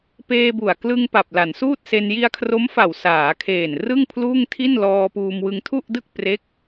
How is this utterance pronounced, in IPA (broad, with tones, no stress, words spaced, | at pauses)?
peː˧bu˨˩a̯ klɯ˧ŋ pa˨˩p̚la˩˦nsuː˥˩t̚se˧n ji˧a̯kʰro˦˥mfa˨˩w saː˩˦kʰeː˨˩n rɯ˥˩ŋpʰluː˥˩ŋtʰi˥˩nlɔː˧ puː˧mwɯ˧ŋ tʰu˥˩ʔdɯ˥˩k̚pre˦˥k̚